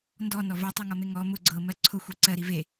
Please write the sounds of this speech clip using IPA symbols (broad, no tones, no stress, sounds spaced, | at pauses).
n d ɔ n ɔ v ɜ tˤ e ŋ ɔ m e ŋ ɔ m ʊ ɡ͡ǀ ɤ m ɜ ǀʰ ʊ xʷ i ǀ ɜ ɾ i v e